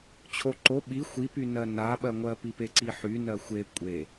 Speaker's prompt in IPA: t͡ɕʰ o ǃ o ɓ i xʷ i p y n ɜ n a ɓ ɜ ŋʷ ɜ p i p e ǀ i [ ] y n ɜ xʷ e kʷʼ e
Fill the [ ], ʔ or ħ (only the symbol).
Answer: ħ